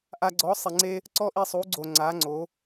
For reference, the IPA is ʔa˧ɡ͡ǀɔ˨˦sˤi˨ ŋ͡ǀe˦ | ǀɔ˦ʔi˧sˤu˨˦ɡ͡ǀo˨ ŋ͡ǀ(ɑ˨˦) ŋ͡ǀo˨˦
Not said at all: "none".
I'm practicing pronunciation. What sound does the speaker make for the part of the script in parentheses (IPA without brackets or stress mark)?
a˨˦